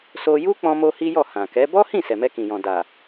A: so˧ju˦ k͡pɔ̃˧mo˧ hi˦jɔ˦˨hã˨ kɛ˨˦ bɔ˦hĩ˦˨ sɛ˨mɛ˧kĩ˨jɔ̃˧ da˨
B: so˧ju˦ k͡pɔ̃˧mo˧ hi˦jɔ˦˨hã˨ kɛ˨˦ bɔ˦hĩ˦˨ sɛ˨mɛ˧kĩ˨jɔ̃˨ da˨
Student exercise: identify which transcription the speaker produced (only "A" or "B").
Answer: B